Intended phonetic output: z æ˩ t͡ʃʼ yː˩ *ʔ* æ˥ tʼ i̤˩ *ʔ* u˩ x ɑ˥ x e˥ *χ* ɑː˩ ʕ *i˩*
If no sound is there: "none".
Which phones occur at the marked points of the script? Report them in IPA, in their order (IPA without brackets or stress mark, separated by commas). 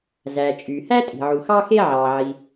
h, ʕ, ʕ, i˩